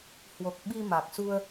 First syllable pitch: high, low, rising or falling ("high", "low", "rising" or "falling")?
low